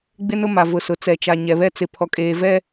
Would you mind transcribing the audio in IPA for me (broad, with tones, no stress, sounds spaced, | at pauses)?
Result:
ɡ͡b ɪ˦ n ʊ˦ m a˨ v ʊ˨ s ʊ˨ t͡s ɛ˨ t͡ʃ a˨ ɲ ɛ˨ β ɛ˦ t͡s ɪ˨ pʰ ɔ˨ kʼ eː˨ v ɛ˦